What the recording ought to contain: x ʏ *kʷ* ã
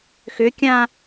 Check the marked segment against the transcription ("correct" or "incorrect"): incorrect